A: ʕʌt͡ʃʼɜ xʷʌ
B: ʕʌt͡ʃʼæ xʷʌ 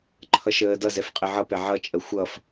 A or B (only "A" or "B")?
A